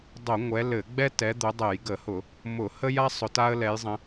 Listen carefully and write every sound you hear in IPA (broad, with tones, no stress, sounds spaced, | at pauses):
dˤ o˧˩˧ ŋʷ ɛ˨˦ l ɘ˧˩˧ ɡ͡b ɛ˥ t ɛ˨˦ d̪ ʊ˨˦ dˤ ɛ˧˩˧ j ɡ ə˧˩˧ h ʊ˧˩˧ | m ʊ˧˩˧ h ə˥ j a˥ sˤ ʊ˨˦ t a˥ ə̯ l ɛ˨˦ j zˤ ə̃˨˦